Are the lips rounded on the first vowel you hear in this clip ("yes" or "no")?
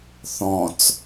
yes